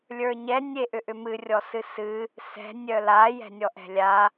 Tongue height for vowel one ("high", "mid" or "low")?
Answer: mid